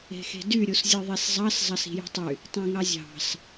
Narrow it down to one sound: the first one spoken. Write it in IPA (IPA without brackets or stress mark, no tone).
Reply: e̤